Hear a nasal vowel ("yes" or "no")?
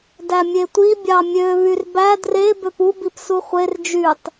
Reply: no